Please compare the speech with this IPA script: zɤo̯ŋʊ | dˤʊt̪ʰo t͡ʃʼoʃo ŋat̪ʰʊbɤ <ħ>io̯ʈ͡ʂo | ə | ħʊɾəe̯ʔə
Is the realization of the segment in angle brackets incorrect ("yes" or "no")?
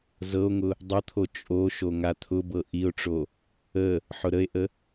yes